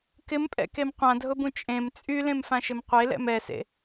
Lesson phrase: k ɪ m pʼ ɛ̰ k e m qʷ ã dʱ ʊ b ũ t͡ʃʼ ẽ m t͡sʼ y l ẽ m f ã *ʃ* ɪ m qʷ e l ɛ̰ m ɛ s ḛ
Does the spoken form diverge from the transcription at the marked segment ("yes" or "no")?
no